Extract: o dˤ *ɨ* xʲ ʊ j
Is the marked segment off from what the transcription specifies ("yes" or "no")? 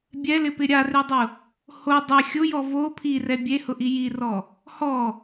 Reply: yes